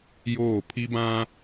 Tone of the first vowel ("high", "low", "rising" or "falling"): falling